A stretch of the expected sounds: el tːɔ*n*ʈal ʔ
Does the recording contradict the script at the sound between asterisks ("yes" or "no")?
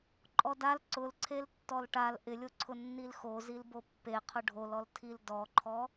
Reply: yes